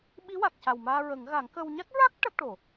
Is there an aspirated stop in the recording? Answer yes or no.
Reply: no